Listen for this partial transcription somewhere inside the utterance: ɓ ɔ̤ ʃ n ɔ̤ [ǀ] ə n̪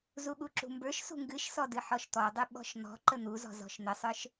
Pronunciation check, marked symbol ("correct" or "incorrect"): incorrect